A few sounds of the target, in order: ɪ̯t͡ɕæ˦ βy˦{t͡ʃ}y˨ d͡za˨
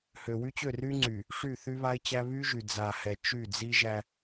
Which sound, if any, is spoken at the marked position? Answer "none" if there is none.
ʒ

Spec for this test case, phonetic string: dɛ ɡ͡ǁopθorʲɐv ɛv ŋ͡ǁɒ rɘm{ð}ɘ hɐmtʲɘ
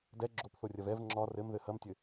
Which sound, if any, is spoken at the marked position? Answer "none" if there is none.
ð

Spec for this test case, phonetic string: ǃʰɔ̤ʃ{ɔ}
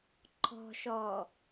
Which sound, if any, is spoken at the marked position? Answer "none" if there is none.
ɔ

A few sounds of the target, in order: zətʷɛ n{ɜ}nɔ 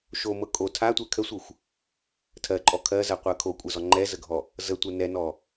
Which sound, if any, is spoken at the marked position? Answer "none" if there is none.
ɛ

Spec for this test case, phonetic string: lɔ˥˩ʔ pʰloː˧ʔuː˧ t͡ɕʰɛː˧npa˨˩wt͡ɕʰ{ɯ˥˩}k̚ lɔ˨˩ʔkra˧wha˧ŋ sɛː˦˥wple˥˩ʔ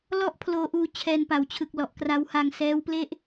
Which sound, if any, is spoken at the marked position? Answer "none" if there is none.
ɯ˨˩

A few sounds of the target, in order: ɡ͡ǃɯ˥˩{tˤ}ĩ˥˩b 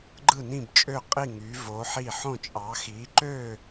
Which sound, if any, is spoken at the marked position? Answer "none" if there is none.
n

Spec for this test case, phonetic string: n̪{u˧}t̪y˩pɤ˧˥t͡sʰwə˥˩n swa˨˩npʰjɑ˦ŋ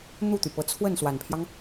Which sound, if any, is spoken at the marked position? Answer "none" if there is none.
u˥˩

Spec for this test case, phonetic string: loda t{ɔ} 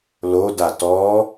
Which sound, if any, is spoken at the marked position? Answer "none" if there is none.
ɔ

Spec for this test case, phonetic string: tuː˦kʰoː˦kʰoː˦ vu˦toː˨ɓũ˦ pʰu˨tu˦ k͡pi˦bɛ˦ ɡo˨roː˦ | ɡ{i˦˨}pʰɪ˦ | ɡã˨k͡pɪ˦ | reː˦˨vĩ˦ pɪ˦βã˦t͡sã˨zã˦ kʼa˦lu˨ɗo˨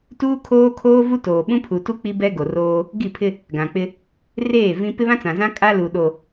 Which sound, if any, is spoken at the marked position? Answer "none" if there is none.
i˦˨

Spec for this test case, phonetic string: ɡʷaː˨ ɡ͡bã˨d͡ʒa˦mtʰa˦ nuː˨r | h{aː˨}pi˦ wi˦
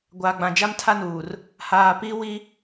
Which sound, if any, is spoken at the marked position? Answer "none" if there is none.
aː˨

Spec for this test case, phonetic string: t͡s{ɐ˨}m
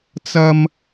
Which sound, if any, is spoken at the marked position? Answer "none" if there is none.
ɐ˥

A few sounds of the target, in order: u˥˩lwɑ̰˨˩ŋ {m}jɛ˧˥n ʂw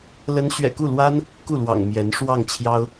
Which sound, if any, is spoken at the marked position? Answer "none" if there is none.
m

